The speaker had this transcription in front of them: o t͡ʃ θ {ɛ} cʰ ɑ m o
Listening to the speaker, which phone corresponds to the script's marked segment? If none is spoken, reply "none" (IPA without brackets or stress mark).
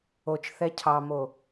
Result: ɛ